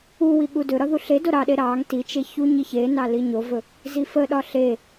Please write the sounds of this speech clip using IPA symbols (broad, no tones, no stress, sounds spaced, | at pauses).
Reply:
u w i ɠ u d ɵ ɾ ɒ ð u ɬ e d o ɾ ɑ ɗ e ɾ ɑ ŋ t i t͡ʃ e ç u ɲ i ç e n ɑ l i ɲ o v ɵ | z i f ə ɗ ɒ ɬ e